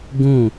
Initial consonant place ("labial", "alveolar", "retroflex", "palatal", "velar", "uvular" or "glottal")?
velar